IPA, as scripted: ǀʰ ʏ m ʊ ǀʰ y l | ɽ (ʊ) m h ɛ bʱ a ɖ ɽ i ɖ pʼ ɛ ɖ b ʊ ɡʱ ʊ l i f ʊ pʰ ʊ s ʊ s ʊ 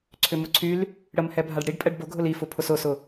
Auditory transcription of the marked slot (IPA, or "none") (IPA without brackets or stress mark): ə